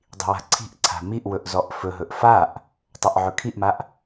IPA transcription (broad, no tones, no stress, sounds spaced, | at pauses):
dˤ i̤ w a̤ ǀʰ i̤ ʔ ǀʰ a̤ m i ʔ w ɵ ʔ z ɔ ʔ f ɵ ɦ ɵ ʔ f a ʔ | tˤ ɵ ʔ ʕ ɵ kʰ i ʔ m a ʔ